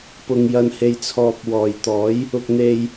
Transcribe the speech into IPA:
pʊ˨ŋjɐ˨nhe˨jt͡sʰɔː˨p̚ wɔː˨˩jt̪ɔː˨˥j | ʊ˧k̚n̪e˧j

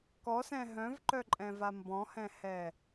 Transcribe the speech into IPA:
kɔsɛ̃ ɦœ̃vǃœǃʼɛ̃va mbɔ̃hɛ̃hɛ

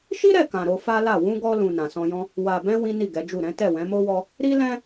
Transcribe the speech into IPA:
ʃi˦ɾɛ˦˨kã˨ ɾo˧fa˦la˦˨ wũ˧ɡɔ˧lũ˨ nã˨sɔ̃˧jɔ̃˦ | wa˨bɛ̃˧ wĩ˦ni˦˨ɡɛ˨˦d͡ʒu˦˨ ɾɛ̃˨˦ tɛ˦˨wɛ̃˨˦mo˦wɔ˦ | ɾi˦lɛ̃˦

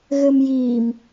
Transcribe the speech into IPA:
ɣɘːmjiːm

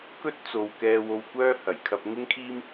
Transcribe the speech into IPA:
kɵ˥t̚t͡so˨w kɛː˧wo˧wkʷœː˥hɐ˨˩j kʰɐ˧p̚ŋɪ˥ŋkʰiː˥m

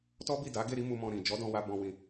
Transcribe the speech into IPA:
tɔ˦bi˦˨da˨˦ ɡe˦˨ɾi˨˦ mu˧mɔ̃˧ ɾĩ˨ d͡ʒɔ˨˦dɔ̃˧wa˧ bɔ̃˧wĩ˧

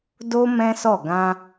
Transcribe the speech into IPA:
do˦ mɛ̃˦sɔ˦˨ ɡã˧

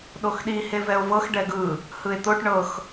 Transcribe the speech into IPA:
ɗoxɗi hevɛo̯vɤx ɖɛɡɯ | hɯe̯t̪oʈ ɳɤx

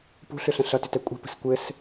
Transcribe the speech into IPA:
pṳɬʏɬə̃ ɬʌtʏtɛ kʷʼɛ̤pə̤s kʷɘs

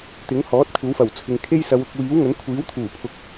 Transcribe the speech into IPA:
t̪ɪ˨˥ŋhɔː˨˥t̚ kʷʰɐ˨˥wfɐ˨˩wt͡sʰɪ˨˧ŋ kʰe˥jsɐ˨˧wʊ˨k̚wiː˨˥w ŋɵ˨˥n kʷʰiː˨˥wt̪ʰuː˨˩pʰʊ˨k̚

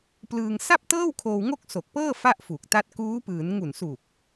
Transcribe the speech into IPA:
plɯː˧ŋ sa˥˩p̚tɤː˥˩w kʰoː˧wŋo˥˩k̚so˨˩k̚pɤː˥˩ fa˥˩ʔfu˨˩k̚ta˦˥t̚ kuː˦˥pɯː˩˦n ŋu˨˩nsu˨˩k̚

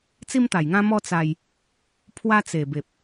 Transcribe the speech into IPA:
t͡si˦mt̪a˨˩jŋã˦mɔ˦ t͡sa˧j | pʰwa˦t͡se˨˩be˨p̚

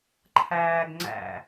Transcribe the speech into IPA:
ǃʰæːɡ ŋ͡ǀæ̰

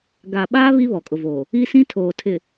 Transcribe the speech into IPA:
ɡa˨ɓaː˦ βi˦βɔ˨kʼʊ˨voː˨ | i˦sĩ˦tʰoː˨ tʰɪ˨

